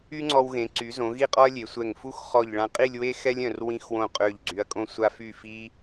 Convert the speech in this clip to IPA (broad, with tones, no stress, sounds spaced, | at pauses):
y˥ ŋ͡ǀ ɔ˧ w ɣ ẽ˩˧ ǀ y˩˧ z õ˩˧ ɣ i˥˧ qʼ ɔ˥ ɐ̯ lʲ e˩˧ sʷ ɛ˧˩ ŋ f u˥˧ x χ ɔ˧˩ ʎ ɭ ã˧ qʼ i˥˧ lʲ w e˥ x ɛ˥ lʲ œ̃˧˩ r w ĩ˧ x w õ˧˩ qʼ ø˧˩ ʎ ɡ͡ǀ y˩˧ ɐ̯ kʼ õ˧ sʷ a˧ f y˧˩ f i˧